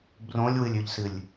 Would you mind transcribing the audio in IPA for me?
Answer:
b r õ lʲ w ɨ lʲ ʉ ʎ s ɨ lʲ

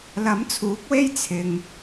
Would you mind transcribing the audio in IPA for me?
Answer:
l ɐ˨˥ m t͡sʰ uː˨˥ k̚ w e˥ j t͡sʰ ɪ˨ ŋ

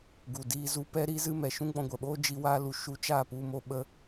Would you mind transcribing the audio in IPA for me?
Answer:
ɡ u˨ d iː˧ z u˧ p ɛ˦ ɾ iː˦ z ɨ˦ m ɛ˨ ʃ ũ˦ ɡ͡b ɔ̃˧ ɡʷ ɛ˨ ɓ oː˦ d͡ʒ i˦ w aː˦ l u˨ ʃ u˧ t͡ʃ aː˦˨ p u˧ m o˧ ɓ ə˧

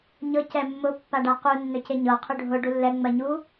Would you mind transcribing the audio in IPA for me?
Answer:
ɲ ɤ c ɛ mː ʊ pː a ɖ a q u nː ɵ c e ɲ ɤ qʰ ɵ ɖʱ ʊ ɖ u lː ɛ ŋ͡m ɜ ɲ u

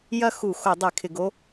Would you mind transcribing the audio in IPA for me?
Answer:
j ɐ˥˧ x u˧˩˧ x o˧˩˧ dˤ e˧˩˧ kʰ ɪ˧˩˧ ɡ o˦˥

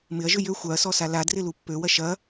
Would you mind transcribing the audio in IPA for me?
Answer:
m ɪ ɐ̯ ʒ ʏ j ø xʷ a ɐ̯ s ɔ s a l a d r ɪ l u pː ø w ɐ ʃ ɐ

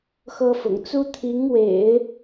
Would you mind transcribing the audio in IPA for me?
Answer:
x ɤ˥ f ʊ̰˨˩ ŋ t͡s u˥ t̪ʰ i˧˥ ŋ w ḛ˨˩˦ ɪ̯

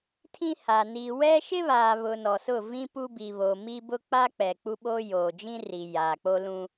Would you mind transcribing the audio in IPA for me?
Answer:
tʰ ĩ˦ h a˨ n i˨ w ɛ˦ ʃ ɪ˦ β aː˨ β ʊ˨ n ɔ˨ s ʊ˦˨ v ĩ˦ p u˦ b i˨ β o˨ m i˦ b ʊ˦ k͡p a˦ k͡p ɛ˨ k͡p u˦ ɓ o˦ j oː˨ d͡ʒ ĩ˦ r i˨ j aː˨ k͡p o˦ l ũ˦

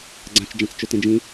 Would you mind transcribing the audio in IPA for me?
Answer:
ɡ͡ǀ ã t͡ʃ d͡ʒ ã t͡s t͡ʃ ɵ t ẽ d͡ʒ ĩ

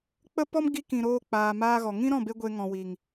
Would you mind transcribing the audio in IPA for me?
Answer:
k͡p ə˦ p ɔ˦ m ɡ i˧ k ĩ˨ ɾ oː˧ k͡p aː˨ m aː˧ ɣ ɔ˨ ŋ ĩ˦ ɾ ɔ̃˦˨ b e˧ ɡʷ e˧ ŋ ɔ̃˨ w i˨ ŋ

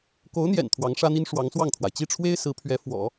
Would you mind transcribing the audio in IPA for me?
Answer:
k o˧˥ ʊ̯ n̪ j ɛ̰˨˩ n t̪ʰ w ɑ˧˥ ŋ ʂ ä˥ n̪ i˥ n ʂ w ɑ˧˥ ŋ s w ɑ˥˩ ŋ t̪ʰ w a˩ ɪ̯ t͡ɕ i˥˩ ʈ͡ʂʰ w e˥ ɪ̯ s ɹ̩˧˥ pʰ ɥ ɛ˧˥ f w ɔ̰˨˩˦

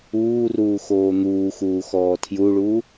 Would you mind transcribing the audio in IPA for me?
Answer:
uː r uː x oː n̪ uː x uː x ɔː tʰ j u ɭ uː

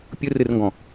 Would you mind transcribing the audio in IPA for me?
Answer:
pʲ ɯ r ɨ r ŋ ɡ ɔ̃

